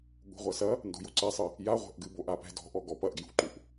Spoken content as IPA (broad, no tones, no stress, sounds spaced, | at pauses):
ɠ ṳ ʁʷ ɐ s ɐ | n d o̤ j o ǀ ɛ sˤ ɨ | j a ʁʷ ɛ̤ ʔ ɡ ɨ b o ʔ a p ɛ̤ d ɔ̤ ʔ ɔ ɡ ɔ p ɐ ʔ ɡ j ṳ ǃ u ʔ